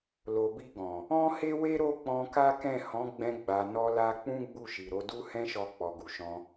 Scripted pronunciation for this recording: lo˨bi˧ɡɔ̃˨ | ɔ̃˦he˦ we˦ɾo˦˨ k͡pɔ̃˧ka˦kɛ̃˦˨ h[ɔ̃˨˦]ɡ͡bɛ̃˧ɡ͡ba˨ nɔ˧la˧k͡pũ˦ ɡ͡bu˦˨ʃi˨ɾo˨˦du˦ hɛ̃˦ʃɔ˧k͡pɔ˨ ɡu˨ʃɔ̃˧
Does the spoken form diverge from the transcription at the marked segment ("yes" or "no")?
no